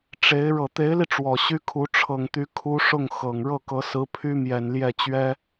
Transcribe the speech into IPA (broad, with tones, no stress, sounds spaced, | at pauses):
ʈ͡ʂ e˧˥ ɪ̯ ɻ ɤ˨˩ t̪ e˧˥ ɪ̯ l i˧ ʈ͡ʂ w ɔ˨˩ ɕ y˥ kʰ u˧˥ ʈ͡ʂʰ ɤ˨˩ ŋ t̪ y˧˥ kʰ u˥ ʂ ʊ˥˩ ŋ x ɤ˨˩ ŋ ɻ ɤ˥˩ k ɤ˧˥ s ɹ̩˧˥ pʰ y˥ m j ɛ˨˩ n l j ɛ˥˩ t͡ɕ ɥ ɛ˥